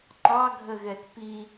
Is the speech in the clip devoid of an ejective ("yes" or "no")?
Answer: yes